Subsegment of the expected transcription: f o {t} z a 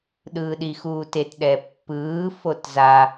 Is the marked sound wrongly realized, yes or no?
no